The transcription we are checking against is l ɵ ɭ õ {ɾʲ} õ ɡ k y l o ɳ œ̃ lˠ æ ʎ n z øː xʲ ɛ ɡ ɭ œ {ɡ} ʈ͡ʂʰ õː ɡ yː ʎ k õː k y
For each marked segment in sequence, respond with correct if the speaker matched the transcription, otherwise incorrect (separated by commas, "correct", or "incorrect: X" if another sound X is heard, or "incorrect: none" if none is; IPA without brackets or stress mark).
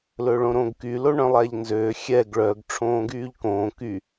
incorrect: ɾ, correct